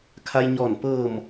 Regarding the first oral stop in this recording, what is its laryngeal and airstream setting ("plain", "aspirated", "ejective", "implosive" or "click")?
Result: aspirated